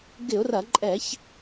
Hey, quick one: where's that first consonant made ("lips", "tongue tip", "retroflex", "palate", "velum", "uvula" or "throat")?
velum